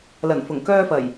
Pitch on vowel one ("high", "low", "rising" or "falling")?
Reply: low